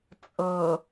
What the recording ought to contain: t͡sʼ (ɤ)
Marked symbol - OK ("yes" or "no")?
yes